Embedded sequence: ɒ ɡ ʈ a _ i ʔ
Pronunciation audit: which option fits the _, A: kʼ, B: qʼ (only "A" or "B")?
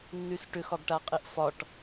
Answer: B